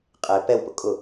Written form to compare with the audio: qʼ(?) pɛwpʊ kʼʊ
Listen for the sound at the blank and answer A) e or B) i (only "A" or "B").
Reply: A